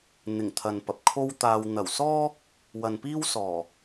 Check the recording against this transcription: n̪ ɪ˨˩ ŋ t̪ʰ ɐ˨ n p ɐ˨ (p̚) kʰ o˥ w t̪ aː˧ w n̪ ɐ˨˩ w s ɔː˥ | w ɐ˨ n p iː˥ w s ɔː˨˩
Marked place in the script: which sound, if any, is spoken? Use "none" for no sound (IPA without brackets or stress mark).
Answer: p̚